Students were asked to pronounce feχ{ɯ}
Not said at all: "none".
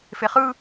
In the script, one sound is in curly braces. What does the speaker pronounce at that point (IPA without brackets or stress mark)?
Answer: ɯ